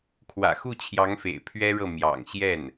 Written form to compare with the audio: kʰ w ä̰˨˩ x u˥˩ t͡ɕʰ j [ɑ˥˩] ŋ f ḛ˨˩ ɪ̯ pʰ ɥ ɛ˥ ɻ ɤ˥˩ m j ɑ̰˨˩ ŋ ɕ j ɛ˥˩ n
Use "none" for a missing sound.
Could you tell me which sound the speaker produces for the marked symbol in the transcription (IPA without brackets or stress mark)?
ɑ˧˥